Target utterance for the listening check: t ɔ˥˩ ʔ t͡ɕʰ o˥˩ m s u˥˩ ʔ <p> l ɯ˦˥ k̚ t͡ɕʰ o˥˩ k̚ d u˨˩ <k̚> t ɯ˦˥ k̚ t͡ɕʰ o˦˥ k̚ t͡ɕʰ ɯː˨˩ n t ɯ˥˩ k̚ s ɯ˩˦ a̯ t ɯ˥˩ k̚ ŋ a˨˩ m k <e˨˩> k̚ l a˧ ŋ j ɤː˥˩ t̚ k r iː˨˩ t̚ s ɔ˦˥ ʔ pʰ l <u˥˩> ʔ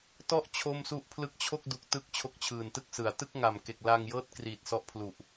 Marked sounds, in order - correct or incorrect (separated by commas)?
incorrect, correct, correct, incorrect